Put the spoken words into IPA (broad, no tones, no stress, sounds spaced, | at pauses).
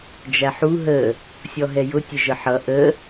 d͡ʒ æ ħ u ɦ ə | sʲ ɔ ɦ ɛ j ʊ tʲ ə ʒ ə ħ ʌ ʔ ə